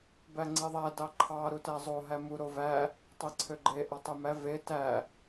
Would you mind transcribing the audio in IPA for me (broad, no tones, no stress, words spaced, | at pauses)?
bæŋ͡ǀeðˤæ dɑǃʰɑ ɾutæzˤo ɦæmu ɾovæ | tˤeǀʰøɡ͡ǃe ʔɑtˤemæ ve tæ